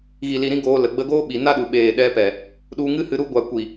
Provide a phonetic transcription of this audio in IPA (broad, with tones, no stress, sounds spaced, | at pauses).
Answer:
ɣ i˨ l i˨ ɾ ĩ˧ ɡ oː˧ l ə˨ ɡ͡b ə˧ ɡ oː˦ ɓ i˨ n a˦ ɗ u˨ ɓ eː˨ ɗ ɛ˧ p ɛ˨ | ɗ u˧ ŋ ɨ˦ h ɨ˧ ɾ u˧ ɡʷ a˨ kʷ i˨